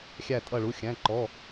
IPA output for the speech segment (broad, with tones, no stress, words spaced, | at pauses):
xʲæ˧˩tʼʌ˧˩ ɭu˩˧˩xʲæ̃˩˧˩ǃɔ˩˧˩